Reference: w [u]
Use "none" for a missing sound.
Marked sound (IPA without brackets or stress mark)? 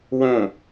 ũ